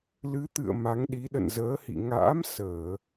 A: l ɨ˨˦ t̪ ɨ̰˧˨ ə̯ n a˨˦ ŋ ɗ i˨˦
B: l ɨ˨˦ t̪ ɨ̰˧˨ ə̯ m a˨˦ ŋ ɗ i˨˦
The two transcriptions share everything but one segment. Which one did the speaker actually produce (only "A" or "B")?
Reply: B